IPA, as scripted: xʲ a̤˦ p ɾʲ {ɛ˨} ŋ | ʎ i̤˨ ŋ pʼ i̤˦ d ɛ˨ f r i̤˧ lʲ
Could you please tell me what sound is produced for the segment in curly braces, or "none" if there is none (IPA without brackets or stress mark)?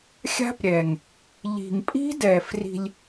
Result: ɛ˨